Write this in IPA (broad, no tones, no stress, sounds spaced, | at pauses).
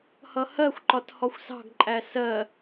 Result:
h ʌ h ɜ xʷ ǃ ɒ t h ɔ xʷ s ɑ̤ ɡ ǃʼ æ s ɜ